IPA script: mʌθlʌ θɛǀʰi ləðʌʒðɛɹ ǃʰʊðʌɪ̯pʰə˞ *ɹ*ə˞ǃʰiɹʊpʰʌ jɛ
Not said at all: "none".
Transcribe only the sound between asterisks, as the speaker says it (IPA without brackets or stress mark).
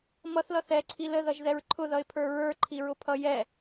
ɹ